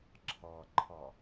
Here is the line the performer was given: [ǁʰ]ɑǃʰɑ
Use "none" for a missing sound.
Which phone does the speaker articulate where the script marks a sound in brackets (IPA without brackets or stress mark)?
ǁʰ